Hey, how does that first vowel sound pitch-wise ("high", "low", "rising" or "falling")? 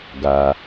low